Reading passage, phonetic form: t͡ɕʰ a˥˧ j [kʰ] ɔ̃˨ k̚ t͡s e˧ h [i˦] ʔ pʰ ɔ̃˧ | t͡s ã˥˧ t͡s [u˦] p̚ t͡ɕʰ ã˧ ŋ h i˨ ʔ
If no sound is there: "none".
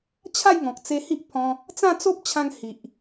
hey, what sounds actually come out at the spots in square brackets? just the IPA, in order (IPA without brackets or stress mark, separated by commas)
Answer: ŋ, i˦, o˦